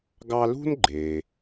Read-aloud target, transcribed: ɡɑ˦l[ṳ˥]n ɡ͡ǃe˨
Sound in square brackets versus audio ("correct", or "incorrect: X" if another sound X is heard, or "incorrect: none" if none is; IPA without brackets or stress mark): correct